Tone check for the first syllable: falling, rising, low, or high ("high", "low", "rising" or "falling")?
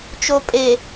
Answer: low